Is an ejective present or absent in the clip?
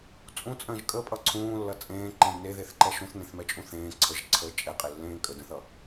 present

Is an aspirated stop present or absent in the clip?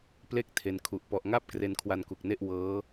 present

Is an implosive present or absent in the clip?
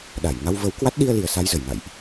present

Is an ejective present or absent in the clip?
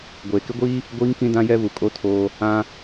present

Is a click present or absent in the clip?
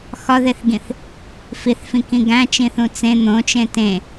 absent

